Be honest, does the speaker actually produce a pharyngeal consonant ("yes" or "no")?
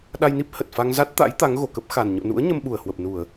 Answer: no